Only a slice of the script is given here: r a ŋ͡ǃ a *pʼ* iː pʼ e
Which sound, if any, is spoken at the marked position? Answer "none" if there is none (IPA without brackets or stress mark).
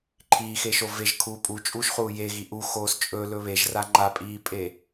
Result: pʼ